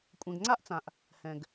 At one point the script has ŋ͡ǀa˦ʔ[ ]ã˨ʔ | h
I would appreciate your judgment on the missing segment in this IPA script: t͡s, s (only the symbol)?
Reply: t͡s